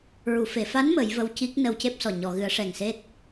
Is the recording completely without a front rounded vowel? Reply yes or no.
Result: yes